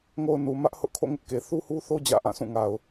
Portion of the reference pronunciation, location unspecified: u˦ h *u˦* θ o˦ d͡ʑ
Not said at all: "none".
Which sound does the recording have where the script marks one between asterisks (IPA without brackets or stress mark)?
u˦